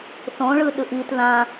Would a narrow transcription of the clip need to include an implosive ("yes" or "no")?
yes